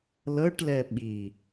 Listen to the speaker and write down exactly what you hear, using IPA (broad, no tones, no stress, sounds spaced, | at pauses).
l ɤ ʈ l ɛ ɓ i